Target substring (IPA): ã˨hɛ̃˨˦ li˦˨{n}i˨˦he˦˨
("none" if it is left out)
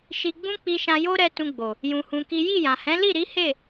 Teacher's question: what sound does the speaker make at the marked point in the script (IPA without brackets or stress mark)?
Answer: ɾ